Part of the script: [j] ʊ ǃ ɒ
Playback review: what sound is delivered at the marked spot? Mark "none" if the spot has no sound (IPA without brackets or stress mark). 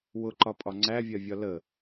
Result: w